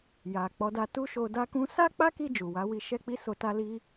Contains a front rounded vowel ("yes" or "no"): no